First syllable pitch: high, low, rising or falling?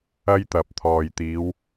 high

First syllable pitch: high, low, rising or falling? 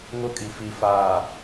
high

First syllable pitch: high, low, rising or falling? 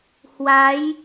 rising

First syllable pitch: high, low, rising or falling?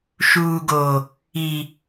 low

